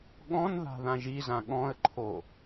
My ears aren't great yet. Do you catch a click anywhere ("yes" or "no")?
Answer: yes